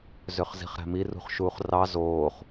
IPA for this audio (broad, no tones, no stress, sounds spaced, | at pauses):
z ø χ z i̤ χ ɾ æ̤ m i r ṳ χ ʃ uː χ r ɑ z oː χ